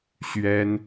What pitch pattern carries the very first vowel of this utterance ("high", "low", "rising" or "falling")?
high